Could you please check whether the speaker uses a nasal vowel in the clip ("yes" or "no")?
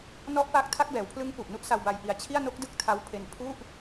no